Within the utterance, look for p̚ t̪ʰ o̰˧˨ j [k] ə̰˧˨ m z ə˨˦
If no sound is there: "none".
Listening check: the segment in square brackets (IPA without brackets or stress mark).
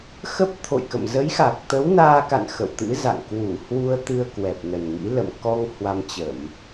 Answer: k